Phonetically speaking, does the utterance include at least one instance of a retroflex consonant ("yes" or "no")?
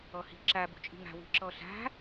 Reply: no